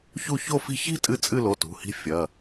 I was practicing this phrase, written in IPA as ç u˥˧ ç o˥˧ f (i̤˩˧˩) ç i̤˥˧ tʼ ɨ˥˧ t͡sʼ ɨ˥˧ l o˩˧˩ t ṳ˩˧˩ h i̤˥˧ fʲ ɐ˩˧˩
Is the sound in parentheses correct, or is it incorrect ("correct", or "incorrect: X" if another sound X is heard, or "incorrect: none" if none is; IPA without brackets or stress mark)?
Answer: incorrect: i̤˥˧